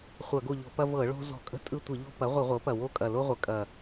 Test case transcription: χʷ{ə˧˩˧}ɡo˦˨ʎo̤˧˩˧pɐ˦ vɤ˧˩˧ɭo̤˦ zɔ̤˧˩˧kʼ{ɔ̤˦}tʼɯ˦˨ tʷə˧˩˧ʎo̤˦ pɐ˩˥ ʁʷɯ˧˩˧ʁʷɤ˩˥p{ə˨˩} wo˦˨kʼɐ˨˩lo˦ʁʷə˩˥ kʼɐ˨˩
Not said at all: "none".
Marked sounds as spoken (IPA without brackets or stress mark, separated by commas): ɐ˧˩˧, ə̤˦, ɐ˨˩